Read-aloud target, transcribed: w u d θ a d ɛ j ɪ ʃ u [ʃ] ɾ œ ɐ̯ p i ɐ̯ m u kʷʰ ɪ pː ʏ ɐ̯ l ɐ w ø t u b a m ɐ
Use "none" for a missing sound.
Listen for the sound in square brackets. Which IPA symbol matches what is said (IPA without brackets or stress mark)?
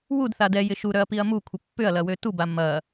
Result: none